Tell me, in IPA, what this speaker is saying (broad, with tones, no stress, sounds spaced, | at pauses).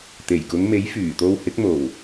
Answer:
t̪ e˨˩ j k ʊ˨˧ ŋ m e˨˥ j f yː˨˩ t̪ o˧ w h ɪ˨˥ k̚ m o˨˩ w